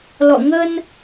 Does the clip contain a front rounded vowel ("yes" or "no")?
no